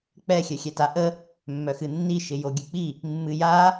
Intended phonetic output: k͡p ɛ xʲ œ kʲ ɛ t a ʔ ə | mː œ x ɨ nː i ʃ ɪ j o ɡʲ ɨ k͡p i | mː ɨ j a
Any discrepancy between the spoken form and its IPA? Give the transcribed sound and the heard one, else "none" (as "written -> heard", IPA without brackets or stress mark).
kʲ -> xʲ